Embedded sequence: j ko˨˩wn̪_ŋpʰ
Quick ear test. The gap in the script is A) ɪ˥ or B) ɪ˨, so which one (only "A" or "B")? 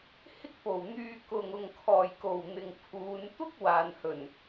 B